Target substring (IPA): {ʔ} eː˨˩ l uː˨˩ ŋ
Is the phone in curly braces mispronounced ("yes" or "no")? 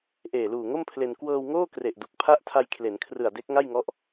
no